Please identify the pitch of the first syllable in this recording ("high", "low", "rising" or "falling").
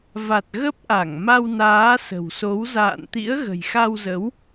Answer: low